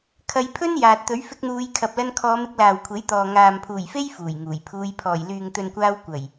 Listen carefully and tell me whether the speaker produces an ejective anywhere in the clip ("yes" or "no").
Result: no